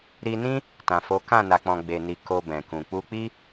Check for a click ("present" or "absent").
absent